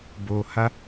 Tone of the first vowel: low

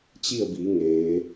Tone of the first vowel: falling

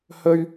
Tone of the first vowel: high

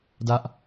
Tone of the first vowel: high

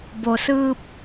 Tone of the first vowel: low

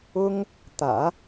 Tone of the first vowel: high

